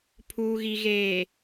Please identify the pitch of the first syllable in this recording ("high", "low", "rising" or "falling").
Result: low